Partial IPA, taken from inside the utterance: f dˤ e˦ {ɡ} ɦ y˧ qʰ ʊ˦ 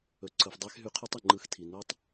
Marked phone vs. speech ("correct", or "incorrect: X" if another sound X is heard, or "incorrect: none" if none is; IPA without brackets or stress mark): incorrect: x